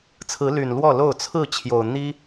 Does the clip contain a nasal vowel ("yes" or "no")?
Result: no